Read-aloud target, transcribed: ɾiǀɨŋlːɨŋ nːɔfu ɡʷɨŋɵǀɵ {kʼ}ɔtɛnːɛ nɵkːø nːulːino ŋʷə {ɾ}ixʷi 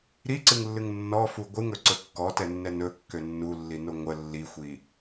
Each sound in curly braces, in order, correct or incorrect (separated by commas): incorrect, incorrect